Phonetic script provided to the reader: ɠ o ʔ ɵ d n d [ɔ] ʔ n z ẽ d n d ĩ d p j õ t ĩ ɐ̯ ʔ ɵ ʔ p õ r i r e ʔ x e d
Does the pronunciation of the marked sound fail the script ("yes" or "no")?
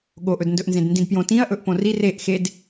yes